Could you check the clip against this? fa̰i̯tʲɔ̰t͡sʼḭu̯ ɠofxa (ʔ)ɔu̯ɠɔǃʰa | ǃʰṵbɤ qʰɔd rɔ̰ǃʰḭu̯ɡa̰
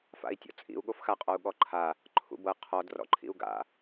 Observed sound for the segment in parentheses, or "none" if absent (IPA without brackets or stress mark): qʼ